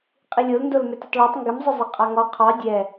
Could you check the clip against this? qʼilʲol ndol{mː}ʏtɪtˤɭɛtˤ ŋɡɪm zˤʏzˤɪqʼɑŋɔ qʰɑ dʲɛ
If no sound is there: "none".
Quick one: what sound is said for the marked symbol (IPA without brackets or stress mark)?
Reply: m